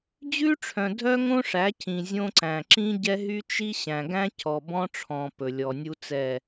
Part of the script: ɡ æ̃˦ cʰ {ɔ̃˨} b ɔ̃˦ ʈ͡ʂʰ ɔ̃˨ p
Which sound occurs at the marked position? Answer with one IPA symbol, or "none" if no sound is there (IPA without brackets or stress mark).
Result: ɔ˨